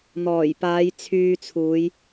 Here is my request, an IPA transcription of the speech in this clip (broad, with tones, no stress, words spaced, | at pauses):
n̪ɔː˨˩jpaː˨˧j t͡sʰyː˧t͡sʰuː˨˧j